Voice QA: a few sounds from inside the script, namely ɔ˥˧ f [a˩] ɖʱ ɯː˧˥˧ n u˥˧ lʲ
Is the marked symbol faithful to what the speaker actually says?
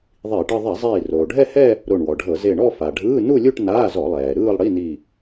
yes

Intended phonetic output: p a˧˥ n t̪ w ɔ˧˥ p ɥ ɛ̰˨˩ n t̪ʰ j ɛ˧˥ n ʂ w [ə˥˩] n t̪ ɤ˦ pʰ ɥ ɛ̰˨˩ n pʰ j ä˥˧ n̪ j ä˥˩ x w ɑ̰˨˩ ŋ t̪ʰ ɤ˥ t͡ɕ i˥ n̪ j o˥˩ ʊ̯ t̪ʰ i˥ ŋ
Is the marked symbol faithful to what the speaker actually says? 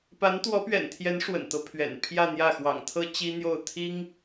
no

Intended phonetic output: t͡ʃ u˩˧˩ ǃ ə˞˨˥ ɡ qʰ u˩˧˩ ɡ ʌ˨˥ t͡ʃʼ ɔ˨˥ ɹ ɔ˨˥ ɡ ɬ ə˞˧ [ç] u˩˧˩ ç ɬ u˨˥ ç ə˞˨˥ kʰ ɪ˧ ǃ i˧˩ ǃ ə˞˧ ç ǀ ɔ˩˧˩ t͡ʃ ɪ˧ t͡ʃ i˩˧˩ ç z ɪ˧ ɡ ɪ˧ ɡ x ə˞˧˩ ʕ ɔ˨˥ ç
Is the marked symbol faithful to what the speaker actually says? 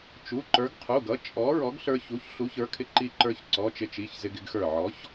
yes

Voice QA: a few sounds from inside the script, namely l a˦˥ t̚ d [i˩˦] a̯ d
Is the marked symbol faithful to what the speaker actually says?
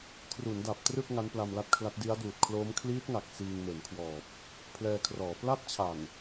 no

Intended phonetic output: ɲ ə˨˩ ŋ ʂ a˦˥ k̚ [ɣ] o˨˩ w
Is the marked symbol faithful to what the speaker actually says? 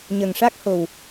no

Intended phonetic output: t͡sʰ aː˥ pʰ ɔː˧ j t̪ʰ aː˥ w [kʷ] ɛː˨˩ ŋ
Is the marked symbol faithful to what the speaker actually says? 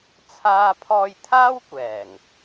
yes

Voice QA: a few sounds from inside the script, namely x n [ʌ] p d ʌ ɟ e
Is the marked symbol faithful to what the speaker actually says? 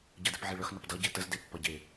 yes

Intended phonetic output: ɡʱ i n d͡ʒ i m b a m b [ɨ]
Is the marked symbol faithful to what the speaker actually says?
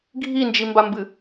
yes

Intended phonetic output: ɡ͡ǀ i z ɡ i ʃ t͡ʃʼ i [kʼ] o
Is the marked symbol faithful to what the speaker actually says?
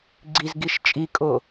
yes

